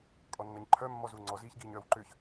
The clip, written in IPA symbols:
kʼɔnːɐɲǃʰœ mːɔzuŋ͡ǀɔ ziːçɡiːɲœːwǃʏːç

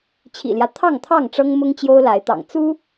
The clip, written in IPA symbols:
t͡ɕʰḭ˨˩ljä˦ t̪ʰɑ˥˨ŋt̪ʰɑ˥˨ŋʈ͡ʂɤ˦ŋmʊ˦ŋ t͡ɕjo˦ʊ̯la˨˦ɪ̯t̪ɑ̰˨˩ŋ t͡su˦

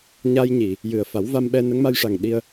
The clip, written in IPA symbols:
ɲa˧jɲi˨˩˨ | jɨ˨˩ə̯ fa˨˩˦wva˧mɓɛ˧ nə˧˥ŋma˧jʂa˨˩ŋ ɗi˧ə̯

